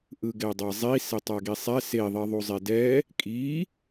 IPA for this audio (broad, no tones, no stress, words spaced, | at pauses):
ʔɯɡɛdˤazˤi setˤaɡisˤɛ se ðˤeðˤuzˤedɛ | kʼi